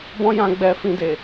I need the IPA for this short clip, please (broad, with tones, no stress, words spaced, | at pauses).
bɔ̃˦jã˧ ɡ͡bɛ˧fĩ˧de˨